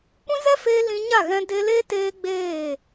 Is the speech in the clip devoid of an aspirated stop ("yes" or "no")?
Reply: yes